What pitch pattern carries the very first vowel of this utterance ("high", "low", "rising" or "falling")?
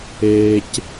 low